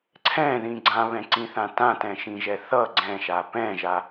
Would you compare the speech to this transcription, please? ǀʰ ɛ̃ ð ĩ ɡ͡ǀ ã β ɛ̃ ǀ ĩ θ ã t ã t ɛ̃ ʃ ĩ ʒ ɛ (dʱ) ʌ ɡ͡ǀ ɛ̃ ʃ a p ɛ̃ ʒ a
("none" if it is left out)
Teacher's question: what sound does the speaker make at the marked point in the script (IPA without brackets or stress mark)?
θ